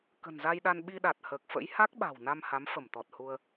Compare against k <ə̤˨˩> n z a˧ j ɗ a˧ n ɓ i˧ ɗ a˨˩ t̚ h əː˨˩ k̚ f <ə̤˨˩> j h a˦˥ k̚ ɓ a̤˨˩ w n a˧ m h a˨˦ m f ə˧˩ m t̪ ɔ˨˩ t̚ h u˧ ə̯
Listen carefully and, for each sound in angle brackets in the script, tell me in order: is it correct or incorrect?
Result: correct, incorrect: ə̰˧˥

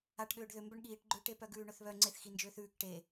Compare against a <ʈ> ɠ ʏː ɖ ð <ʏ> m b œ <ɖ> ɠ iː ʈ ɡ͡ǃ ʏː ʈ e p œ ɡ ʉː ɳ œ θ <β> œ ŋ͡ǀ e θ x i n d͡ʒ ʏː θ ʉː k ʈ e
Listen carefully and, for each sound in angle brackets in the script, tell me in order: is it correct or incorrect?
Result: correct, correct, incorrect: ɳ, correct

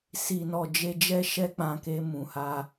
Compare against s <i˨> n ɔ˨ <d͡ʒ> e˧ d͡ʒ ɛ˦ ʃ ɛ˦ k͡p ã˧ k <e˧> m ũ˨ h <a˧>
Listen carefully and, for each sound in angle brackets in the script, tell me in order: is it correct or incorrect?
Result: correct, correct, correct, correct

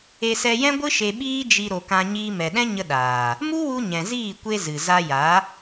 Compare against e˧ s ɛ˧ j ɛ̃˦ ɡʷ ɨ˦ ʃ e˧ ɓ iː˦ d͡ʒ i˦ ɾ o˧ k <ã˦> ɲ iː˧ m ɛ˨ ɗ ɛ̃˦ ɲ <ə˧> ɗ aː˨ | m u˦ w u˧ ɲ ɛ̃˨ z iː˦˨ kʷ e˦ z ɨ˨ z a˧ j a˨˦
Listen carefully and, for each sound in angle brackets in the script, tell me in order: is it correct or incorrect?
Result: correct, correct

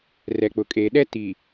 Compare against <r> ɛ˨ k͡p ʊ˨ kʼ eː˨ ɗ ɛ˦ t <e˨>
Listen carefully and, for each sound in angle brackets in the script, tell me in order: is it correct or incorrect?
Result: correct, incorrect: i˨

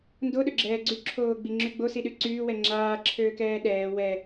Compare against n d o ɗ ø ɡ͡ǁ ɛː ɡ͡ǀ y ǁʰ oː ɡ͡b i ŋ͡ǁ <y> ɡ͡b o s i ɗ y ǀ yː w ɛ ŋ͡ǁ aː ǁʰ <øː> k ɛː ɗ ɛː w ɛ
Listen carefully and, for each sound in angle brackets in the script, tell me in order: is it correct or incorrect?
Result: correct, correct

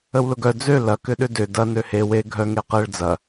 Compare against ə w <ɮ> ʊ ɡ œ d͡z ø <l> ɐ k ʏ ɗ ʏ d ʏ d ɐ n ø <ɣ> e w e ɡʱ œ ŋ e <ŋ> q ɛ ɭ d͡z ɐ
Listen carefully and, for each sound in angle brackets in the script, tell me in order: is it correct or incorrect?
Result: incorrect: l, correct, incorrect: h, incorrect: none

